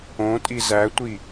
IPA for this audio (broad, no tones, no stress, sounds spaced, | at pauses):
õ tʼ i z æ tʷ i